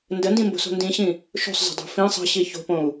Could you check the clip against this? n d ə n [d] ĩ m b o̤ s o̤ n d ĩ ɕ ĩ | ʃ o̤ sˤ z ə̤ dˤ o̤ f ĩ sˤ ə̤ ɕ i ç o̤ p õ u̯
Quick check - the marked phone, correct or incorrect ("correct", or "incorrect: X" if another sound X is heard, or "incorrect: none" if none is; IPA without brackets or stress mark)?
correct